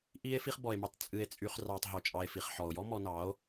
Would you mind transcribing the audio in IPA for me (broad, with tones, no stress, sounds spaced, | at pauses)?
ʔ i˧ e̯ f i˧ χ b ɔ˨ e̯ m y˨ tˤ t͡sʼ ɨ˨ e̯ t͡sʼ y˨ χ r ɑ˨ tˤ ɦ o˨ t͡ʃʼ ɑ˨ e̯ f i˨ χ ħ ɔ˨ o̯ j ɔ˦ m ɔ˧ n ɑ˨˦ o̯